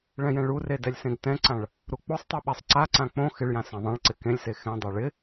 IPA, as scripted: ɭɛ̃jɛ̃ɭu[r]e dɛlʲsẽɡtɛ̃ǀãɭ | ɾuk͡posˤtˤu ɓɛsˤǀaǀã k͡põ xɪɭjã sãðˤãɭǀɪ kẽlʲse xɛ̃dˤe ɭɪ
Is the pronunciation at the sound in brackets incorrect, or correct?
correct